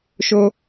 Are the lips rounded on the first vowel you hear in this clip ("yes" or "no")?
yes